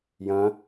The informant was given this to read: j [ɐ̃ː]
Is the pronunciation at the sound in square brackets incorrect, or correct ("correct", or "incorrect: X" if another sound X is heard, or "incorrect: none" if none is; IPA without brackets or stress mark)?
correct